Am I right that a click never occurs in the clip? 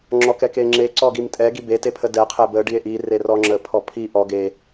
no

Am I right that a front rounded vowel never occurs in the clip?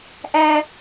yes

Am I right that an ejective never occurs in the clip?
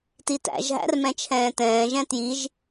yes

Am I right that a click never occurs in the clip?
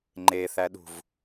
no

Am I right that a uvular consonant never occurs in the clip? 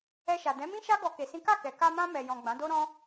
yes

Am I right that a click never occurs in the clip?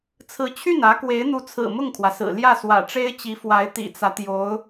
yes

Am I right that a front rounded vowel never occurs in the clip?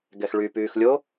no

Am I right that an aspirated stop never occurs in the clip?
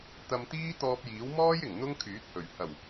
no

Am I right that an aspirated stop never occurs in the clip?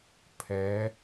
no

